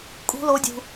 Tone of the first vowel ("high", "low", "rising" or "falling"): high